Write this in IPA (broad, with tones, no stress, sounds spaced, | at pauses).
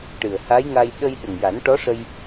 ʈ ɨ˨˩ ə̯ h a˧˥ j ŋ a˧ j ɗ ə˧ j ɗ ə˨˩ ŋ j a˨˩˦ n ʈ ɔ˧˥ ʂ ə˧ j